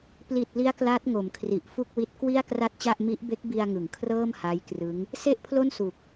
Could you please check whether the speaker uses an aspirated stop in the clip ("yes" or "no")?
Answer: yes